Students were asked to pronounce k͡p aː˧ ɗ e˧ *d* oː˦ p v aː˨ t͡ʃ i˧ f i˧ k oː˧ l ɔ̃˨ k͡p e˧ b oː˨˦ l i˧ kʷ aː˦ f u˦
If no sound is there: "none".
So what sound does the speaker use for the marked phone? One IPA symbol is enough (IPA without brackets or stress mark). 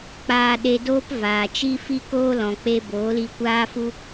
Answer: d